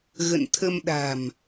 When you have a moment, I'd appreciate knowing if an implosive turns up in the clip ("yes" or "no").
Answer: yes